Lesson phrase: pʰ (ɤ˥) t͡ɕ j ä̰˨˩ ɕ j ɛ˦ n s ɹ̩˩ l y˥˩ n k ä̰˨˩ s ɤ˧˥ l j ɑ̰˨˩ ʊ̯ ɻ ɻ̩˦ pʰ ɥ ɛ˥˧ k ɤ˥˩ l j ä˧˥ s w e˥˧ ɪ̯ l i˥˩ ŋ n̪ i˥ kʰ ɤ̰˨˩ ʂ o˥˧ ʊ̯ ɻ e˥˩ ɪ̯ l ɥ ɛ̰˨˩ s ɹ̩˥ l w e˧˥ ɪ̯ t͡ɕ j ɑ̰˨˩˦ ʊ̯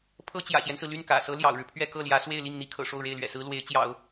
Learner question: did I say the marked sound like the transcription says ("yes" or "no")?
yes